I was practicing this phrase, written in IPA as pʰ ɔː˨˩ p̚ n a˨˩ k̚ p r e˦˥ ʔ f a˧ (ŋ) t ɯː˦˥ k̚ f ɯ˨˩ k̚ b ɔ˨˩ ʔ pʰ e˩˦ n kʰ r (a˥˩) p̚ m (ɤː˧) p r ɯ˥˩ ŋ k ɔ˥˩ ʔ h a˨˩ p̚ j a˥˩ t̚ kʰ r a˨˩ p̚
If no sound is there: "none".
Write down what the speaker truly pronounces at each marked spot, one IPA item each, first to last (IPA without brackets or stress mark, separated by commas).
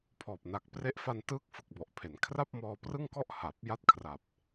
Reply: n, a˥˩, ɔː˧